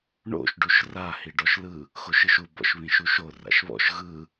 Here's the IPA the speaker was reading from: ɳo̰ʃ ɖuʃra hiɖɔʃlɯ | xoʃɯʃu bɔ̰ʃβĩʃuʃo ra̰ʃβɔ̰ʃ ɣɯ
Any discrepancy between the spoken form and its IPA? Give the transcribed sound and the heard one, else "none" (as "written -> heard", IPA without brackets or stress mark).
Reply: none